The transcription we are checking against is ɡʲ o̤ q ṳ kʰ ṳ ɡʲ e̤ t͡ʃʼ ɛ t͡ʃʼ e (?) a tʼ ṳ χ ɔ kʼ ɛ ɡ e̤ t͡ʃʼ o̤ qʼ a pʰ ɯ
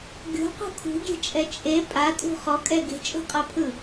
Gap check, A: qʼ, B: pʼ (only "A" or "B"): B